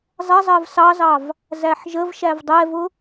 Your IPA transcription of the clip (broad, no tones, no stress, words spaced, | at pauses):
zˤɛzˤɜv sɑzɑv | zæħʒəvʃæv dˤɛvʊ